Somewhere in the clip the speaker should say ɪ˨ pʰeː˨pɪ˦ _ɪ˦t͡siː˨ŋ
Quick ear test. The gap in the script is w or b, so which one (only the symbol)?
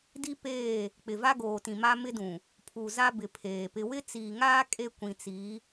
w